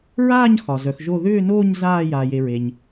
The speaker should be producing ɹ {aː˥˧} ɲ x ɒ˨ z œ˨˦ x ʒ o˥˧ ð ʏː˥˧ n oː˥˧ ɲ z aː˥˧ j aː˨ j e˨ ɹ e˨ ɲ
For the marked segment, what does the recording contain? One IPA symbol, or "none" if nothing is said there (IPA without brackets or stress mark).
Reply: aː˥˧